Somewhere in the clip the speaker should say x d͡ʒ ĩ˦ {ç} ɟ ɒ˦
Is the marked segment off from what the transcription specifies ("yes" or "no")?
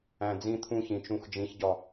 no